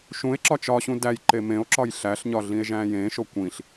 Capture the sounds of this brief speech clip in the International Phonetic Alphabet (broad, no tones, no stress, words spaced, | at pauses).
ʃũe̯ ǁɒt͡ʃɒɕũ dæjǃe mẽo̯ǁɒj ɬæɬɲɒ ɮĩe̯ʒæ̃jẽʃo kʷĩɬ